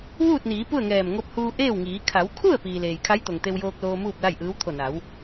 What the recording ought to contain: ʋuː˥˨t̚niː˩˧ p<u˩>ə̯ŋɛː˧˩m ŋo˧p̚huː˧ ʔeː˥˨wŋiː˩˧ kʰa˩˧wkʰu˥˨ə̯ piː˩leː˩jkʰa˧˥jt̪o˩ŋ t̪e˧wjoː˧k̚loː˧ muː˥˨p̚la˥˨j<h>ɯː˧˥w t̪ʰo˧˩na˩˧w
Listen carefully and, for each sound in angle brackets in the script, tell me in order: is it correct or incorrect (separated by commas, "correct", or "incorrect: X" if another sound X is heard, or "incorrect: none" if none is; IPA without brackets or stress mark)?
incorrect: u˥˨, incorrect: ʔ